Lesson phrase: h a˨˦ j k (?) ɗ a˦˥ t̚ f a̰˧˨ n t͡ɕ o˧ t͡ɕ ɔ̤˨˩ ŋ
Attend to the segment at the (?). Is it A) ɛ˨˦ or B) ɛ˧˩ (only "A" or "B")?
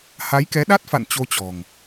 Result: A